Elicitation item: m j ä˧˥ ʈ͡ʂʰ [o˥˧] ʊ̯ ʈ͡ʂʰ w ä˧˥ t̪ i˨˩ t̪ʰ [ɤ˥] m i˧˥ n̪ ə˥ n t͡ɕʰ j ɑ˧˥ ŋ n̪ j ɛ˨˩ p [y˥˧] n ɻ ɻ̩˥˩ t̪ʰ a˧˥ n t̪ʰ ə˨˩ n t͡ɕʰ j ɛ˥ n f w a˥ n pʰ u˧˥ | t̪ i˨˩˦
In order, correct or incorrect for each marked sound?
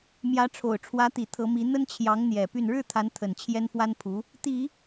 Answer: incorrect, incorrect, correct

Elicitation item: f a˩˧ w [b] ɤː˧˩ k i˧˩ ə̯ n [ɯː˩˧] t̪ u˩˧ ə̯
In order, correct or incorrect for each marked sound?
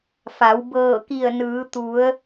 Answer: correct, correct

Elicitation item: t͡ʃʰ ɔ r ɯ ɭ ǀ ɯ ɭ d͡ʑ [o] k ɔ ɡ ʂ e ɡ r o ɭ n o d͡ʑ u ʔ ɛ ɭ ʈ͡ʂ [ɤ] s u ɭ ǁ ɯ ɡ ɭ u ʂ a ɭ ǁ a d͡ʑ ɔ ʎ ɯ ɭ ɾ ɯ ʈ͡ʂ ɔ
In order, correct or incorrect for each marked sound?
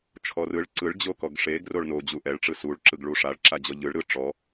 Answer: correct, incorrect

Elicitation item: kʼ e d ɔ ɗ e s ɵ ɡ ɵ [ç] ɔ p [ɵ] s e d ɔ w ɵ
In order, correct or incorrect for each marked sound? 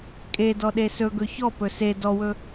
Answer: correct, correct

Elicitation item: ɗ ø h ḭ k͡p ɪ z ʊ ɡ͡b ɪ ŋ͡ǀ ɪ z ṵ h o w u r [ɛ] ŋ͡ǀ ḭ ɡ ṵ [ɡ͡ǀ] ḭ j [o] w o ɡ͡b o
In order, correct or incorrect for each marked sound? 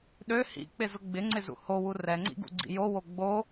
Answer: correct, correct, correct

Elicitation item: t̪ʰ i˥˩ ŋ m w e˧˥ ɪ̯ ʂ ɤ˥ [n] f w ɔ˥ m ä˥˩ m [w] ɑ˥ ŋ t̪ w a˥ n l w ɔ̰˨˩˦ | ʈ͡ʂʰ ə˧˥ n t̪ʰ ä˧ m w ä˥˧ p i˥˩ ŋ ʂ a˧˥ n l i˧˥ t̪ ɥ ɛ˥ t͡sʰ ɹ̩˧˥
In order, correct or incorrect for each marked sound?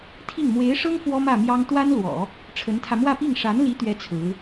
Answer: incorrect, incorrect

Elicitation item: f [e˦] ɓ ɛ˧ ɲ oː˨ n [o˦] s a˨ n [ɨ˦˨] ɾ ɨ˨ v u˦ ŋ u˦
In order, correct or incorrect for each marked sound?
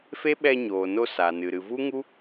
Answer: correct, incorrect, incorrect

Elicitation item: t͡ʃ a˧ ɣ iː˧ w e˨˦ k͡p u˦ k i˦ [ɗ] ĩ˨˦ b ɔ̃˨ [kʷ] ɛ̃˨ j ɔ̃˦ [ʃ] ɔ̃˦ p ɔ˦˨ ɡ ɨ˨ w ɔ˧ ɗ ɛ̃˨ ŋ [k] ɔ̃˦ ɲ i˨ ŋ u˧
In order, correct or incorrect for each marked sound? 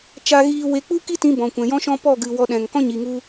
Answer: incorrect, correct, correct, correct

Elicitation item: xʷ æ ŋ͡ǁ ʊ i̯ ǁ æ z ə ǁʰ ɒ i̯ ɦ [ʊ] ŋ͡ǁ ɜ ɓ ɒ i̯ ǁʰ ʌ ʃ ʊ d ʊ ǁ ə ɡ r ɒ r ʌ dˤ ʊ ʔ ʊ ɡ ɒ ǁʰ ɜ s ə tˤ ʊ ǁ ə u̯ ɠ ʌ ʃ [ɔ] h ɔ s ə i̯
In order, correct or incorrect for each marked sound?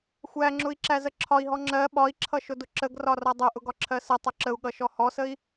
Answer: incorrect, correct

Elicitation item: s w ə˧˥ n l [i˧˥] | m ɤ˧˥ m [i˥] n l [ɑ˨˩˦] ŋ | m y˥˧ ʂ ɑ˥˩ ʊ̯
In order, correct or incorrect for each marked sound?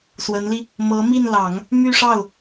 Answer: incorrect, incorrect, correct

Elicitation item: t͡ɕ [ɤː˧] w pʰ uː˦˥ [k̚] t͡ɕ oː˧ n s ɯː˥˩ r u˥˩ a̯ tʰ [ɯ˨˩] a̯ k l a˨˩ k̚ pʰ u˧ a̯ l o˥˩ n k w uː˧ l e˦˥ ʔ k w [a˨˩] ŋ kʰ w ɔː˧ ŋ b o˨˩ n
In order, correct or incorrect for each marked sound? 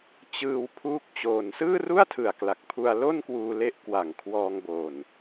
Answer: incorrect, correct, correct, correct

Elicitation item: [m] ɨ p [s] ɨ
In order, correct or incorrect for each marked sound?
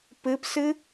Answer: incorrect, correct

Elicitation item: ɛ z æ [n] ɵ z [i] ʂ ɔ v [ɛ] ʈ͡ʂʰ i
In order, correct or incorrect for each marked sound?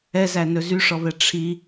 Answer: correct, incorrect, correct

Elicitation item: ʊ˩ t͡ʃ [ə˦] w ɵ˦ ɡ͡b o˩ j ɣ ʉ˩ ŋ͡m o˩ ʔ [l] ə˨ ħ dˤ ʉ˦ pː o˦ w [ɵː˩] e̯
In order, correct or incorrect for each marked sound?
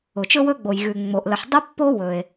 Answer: incorrect, correct, incorrect

